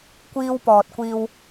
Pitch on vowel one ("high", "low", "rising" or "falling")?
high